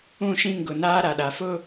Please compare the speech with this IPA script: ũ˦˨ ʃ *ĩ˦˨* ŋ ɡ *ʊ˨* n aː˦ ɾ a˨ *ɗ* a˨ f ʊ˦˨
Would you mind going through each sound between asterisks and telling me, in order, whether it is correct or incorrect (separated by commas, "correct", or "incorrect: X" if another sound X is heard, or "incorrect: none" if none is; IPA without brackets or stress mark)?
correct, correct, correct